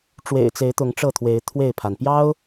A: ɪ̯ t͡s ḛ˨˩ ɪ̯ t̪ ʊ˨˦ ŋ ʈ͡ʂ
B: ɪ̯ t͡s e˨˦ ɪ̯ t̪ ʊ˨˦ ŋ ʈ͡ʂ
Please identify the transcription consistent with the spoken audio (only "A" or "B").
B